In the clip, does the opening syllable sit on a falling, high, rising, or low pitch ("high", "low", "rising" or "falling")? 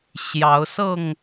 rising